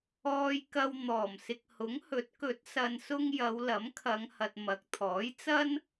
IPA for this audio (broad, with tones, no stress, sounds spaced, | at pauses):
ɔː˧ j k ɐ˧ w n̪ ɔː˨˩ m s ɪ˨ k̚ h ʊ˨˥ ŋ h ɵ˨˥ t̚ k ɵ˨˥ t̚ s ɐ˨ n s ʊ˧ ŋ j ɐ˨˧ w l ɐ˨˥ m kʰ ɐ˨˧ ŋ h ɐ˨ t̚ m ɐ˨˥ k̚ t̪ʰ ɔː˨˥ j t͡s ɐ˥ n